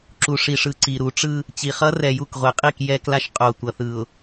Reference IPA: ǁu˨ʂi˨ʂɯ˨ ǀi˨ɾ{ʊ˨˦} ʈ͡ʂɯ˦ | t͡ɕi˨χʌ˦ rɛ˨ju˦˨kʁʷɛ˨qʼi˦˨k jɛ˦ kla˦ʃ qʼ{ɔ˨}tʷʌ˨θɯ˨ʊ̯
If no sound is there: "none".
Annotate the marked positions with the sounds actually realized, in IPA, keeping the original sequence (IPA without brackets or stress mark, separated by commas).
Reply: u˨˦, o˨